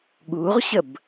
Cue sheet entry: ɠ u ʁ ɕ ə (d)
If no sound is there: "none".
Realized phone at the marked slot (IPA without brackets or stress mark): b